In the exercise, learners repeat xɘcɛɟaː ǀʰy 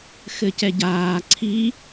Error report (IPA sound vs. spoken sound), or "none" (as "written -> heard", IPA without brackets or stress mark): y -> i